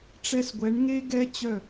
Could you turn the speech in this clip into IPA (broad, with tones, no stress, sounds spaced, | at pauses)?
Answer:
ʈ͡ʂ ɛ˧ s ɡʷ ɛ˨˦ ɳ ŋ e˦ ɡ ɛ˦ t͡ɕ œ˦˨